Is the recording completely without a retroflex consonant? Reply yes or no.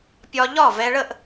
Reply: no